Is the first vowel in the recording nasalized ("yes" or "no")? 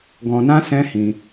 yes